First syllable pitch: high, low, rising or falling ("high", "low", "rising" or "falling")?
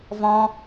high